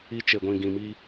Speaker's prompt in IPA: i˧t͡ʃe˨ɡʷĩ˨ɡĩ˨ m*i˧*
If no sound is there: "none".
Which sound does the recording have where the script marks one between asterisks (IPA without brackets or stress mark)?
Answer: i˧